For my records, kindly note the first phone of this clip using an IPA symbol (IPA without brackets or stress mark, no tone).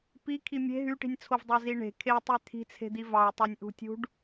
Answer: p